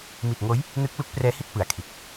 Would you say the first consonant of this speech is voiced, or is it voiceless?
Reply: voiced